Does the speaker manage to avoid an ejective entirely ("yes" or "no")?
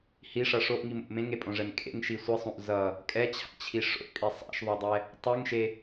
no